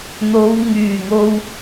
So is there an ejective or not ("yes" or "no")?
no